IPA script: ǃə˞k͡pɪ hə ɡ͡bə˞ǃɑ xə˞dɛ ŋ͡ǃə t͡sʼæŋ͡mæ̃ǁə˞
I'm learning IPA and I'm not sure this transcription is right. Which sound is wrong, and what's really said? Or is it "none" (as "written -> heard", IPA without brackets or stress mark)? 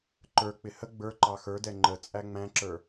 none